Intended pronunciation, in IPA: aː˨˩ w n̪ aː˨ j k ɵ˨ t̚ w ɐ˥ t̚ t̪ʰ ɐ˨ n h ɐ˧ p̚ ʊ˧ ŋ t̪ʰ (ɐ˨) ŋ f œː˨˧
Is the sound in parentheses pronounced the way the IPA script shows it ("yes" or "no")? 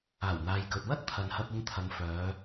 no